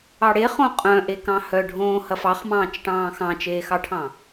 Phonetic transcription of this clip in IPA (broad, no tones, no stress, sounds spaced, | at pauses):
ɑ ɽ e χ õ qʼ œ̃ ʔ e k ɑ̃ h œ ɖʱ õː h ɐ f ɑ χ m ɑ̃ː t͡ʃ ʈ ɑ̃ː x ɑ̃ t͡ʃ eː x ɑ ʈʰ ɑ̃